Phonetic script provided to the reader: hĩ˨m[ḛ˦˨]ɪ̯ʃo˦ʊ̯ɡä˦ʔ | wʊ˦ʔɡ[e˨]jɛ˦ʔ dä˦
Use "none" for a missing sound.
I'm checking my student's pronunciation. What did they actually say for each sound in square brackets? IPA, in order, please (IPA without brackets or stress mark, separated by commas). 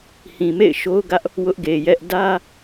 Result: ḛ˦˨, e˨